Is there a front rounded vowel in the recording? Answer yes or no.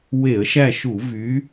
yes